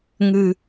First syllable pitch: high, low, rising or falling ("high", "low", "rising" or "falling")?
low